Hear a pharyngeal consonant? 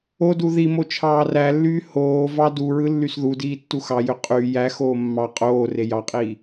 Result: no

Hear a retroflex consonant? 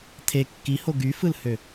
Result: no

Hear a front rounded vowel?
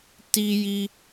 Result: no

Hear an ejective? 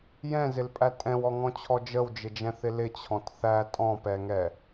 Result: yes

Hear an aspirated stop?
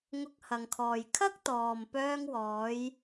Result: yes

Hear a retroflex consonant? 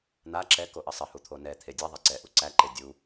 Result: no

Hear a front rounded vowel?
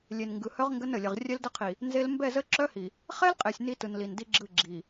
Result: yes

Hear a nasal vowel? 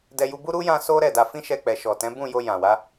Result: yes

